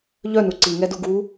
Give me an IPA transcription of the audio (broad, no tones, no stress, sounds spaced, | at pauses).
ʎ œ n u ǀ i ŋ ɛ d u ɡ u